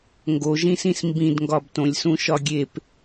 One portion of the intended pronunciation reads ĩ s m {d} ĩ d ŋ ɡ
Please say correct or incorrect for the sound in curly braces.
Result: incorrect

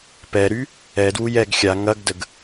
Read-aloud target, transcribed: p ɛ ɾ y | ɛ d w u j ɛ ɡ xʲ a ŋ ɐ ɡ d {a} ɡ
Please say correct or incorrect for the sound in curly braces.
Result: incorrect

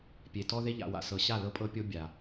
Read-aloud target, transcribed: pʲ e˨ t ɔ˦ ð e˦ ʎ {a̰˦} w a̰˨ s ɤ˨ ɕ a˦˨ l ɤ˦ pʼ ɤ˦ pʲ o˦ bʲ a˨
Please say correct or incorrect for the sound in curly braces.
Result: incorrect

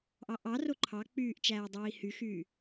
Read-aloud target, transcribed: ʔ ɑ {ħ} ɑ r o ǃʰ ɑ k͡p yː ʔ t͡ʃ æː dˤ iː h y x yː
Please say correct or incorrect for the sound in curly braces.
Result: incorrect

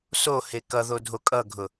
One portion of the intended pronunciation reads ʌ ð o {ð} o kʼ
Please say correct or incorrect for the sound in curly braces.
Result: incorrect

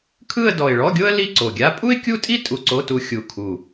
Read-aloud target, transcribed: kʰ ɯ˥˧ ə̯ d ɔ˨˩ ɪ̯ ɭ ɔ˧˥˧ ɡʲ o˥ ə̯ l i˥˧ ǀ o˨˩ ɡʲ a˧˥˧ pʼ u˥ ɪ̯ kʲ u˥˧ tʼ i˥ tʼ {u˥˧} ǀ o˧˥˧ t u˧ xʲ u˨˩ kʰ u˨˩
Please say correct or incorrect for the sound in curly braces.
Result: incorrect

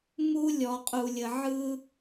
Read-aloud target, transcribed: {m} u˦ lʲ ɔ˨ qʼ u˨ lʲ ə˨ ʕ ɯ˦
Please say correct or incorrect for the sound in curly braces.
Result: correct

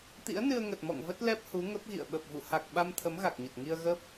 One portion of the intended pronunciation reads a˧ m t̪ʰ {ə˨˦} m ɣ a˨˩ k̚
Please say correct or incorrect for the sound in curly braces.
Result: correct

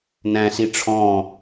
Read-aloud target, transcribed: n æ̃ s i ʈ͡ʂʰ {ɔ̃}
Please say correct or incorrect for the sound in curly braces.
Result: correct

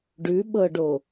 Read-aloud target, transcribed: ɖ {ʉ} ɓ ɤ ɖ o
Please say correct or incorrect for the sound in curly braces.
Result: correct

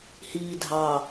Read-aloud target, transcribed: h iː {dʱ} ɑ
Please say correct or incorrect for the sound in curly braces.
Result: correct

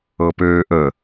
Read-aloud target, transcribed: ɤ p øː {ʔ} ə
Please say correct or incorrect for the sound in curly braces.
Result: correct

